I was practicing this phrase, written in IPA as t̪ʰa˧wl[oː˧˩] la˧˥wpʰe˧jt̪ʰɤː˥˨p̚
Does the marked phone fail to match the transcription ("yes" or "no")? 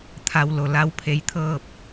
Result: yes